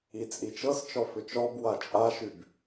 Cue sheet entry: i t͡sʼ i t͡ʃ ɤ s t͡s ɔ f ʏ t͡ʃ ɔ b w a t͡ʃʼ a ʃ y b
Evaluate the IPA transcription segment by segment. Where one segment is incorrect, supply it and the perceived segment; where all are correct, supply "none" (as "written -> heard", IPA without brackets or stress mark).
t͡s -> t͡ʃ